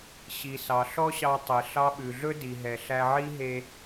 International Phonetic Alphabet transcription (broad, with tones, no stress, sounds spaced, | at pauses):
ɕ i˩ s ɑ˩ ɬ ɔ˥ ɕ ɑ˧ tˤ e˩ ɬ ɑ˧ ɓ ʉ˩ ɮ ɵ˥ d i˩ ɦ ɛ˩ ɬ æ˧ ʕ i˥ ɦ e˧